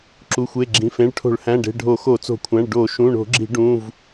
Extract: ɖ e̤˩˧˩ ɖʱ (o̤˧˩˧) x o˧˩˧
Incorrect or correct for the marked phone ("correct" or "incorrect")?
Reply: incorrect